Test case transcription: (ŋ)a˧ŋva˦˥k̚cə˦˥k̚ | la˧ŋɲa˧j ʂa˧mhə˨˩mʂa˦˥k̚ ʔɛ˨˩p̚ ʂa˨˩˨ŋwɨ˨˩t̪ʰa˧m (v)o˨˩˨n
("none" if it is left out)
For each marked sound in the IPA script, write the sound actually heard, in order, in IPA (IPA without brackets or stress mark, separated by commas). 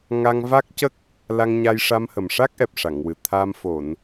ŋ, f